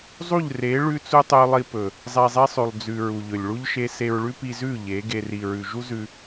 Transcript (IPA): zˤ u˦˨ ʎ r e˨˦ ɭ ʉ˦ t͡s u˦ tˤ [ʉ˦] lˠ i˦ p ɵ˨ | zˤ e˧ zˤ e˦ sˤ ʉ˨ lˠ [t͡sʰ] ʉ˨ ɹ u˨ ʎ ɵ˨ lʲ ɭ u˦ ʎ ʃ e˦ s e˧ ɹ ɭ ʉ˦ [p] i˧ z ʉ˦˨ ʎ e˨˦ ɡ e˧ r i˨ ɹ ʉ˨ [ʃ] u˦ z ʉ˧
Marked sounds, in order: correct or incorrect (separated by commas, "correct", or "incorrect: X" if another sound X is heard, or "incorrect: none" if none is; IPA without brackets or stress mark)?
correct, incorrect: d͡z, correct, incorrect: ʒ